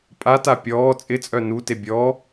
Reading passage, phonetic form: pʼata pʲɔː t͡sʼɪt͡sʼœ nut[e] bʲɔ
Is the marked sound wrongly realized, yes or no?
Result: no